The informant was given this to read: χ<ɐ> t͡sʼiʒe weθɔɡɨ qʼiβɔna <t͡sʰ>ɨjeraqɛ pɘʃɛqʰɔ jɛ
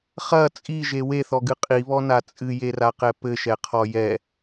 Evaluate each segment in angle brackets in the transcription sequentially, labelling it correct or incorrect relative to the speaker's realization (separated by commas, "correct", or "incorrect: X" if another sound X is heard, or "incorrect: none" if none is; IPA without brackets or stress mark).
correct, incorrect: t͡sʼ